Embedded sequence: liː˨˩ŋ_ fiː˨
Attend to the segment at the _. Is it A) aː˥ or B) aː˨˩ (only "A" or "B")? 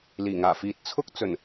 B